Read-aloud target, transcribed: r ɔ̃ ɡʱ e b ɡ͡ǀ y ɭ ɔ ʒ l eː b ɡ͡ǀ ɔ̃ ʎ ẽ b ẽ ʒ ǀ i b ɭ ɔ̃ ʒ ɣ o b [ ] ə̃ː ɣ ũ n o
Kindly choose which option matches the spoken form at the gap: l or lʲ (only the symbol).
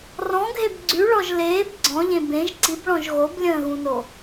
lʲ